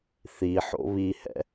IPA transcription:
θi ħo̰βihɛ̰

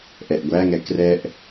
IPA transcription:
ʔɛʔɡʷæŋɛ krɛʔ

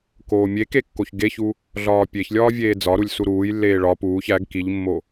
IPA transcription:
koːmʲeke kːoçɡeçu | ɮɒːpʲeçlʲɒː vʲeːd͡zɒɾulʲ suɾuːjlːeː ɭɒ puːç æɡ kiʎmːo

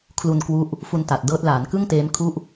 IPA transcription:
kʰlu˧nkwu˦˥ʔ | fu˧nta˨˩t̚dɤː˦˥t̚ laː˩˦nkɯ˥˩ŋteː˦˥mkʰu˥˩ʔ

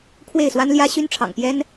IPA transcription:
kʰwe˥˨ɪ̯swa˦nljä˦ ɕy˦nʈ͡ʂʰɑ̰˨˩ŋ pjɛ˦n

